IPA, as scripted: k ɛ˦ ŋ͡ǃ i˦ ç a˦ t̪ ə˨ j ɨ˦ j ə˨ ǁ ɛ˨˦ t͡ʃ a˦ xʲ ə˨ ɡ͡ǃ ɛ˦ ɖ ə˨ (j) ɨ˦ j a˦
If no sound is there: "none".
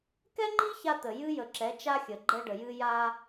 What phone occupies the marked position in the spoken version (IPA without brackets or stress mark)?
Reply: j